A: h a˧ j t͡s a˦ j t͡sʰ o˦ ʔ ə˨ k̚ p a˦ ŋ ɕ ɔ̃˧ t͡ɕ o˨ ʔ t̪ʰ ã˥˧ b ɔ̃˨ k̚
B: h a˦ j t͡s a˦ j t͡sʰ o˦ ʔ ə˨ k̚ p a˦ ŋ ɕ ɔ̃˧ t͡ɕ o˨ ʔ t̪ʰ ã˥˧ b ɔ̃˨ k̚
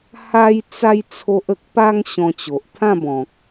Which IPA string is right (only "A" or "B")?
B